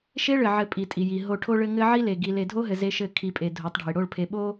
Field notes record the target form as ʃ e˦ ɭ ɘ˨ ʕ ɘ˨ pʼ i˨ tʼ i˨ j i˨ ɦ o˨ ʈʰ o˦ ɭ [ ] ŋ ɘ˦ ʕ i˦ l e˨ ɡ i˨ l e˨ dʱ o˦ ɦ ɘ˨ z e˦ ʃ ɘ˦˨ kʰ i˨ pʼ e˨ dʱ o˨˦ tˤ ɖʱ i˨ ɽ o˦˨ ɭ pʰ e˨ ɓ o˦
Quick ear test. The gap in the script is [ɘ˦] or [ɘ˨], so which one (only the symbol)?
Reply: ɘ˦